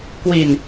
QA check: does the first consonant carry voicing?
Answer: no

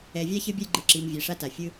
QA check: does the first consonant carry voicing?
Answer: yes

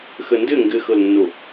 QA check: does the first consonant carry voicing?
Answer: no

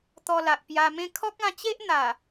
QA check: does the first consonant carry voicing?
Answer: no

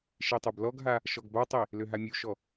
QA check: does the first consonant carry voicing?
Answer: no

